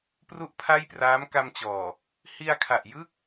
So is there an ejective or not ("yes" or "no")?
no